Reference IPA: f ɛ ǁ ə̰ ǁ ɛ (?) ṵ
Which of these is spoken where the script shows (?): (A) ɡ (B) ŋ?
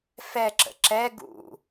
A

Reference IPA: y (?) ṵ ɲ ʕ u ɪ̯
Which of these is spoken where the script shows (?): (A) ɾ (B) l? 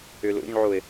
B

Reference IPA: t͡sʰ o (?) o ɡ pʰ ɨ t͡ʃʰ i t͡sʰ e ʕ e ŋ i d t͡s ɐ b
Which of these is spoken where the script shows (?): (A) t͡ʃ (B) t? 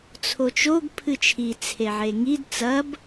A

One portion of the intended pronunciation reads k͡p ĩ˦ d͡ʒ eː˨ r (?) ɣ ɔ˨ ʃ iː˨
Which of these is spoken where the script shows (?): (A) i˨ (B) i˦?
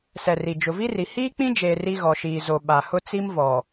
B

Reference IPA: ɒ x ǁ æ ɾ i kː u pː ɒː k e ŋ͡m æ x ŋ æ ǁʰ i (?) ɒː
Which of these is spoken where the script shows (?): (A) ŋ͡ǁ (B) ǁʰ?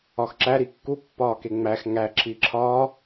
B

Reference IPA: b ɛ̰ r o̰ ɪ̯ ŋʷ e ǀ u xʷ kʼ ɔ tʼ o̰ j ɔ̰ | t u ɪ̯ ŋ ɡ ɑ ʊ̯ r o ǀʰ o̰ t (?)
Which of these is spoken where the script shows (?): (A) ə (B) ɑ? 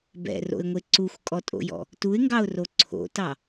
B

